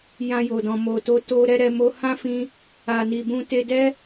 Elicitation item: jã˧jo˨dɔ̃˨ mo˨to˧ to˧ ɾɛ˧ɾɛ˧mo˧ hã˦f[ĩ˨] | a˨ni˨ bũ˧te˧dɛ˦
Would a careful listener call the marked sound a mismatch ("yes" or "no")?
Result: yes